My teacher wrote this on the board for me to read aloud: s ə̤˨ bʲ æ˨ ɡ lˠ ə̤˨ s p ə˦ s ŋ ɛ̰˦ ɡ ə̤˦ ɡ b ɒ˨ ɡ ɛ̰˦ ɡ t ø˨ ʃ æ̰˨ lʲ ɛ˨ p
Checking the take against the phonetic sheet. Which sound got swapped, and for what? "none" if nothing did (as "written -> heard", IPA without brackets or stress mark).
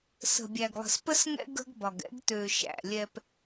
none